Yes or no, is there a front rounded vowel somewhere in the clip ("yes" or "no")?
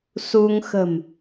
no